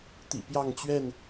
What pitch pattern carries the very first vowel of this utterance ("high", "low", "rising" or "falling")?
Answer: low